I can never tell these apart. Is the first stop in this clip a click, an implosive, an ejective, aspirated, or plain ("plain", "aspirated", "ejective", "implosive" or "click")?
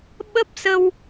implosive